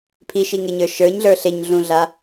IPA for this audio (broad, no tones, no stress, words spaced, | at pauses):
pʰiʃiŋeɲə˞ ʃə˞ɲɮə˞ ɬeɲɮũɮa